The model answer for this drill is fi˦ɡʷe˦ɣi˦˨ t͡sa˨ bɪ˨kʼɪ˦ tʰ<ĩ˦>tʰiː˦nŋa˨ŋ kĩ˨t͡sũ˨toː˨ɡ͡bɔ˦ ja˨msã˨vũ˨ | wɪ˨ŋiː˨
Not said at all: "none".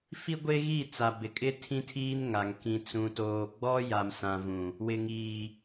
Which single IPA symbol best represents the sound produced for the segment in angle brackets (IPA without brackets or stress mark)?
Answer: ĩ˦